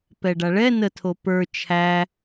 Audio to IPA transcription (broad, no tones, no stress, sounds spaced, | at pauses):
p ɛ ɖ a ɭ ɛ n ə tʰ o p ə˞ t͡ʃʰ æ